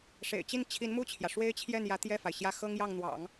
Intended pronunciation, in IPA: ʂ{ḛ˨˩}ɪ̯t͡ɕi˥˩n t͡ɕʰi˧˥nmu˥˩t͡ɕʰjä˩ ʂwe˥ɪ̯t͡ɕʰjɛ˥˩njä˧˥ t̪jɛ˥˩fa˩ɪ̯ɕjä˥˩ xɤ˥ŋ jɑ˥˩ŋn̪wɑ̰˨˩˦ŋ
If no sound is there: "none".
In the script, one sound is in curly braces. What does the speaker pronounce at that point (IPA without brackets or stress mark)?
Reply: ḛ˨˩